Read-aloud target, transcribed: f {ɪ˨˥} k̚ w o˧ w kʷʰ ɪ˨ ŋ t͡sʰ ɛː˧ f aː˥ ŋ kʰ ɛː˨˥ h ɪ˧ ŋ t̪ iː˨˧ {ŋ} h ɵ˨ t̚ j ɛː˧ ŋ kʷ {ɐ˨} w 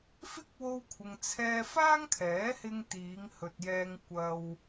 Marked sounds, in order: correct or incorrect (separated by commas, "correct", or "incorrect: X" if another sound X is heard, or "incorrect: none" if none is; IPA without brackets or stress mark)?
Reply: incorrect: ɪ˥, correct, incorrect: ɐ˧